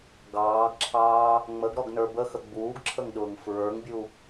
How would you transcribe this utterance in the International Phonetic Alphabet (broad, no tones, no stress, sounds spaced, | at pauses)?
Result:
ɡ ɑː ɡ ǁʰ ɑː | ŋ͡m ə ɡ ɾ ɔ ɡ n ə˞ b ə x ə ɡ͡b uː ɡ ǁʰ ə ŋ ɗ ʊː ŋ f ɹ ə˞ ŋ bʲ u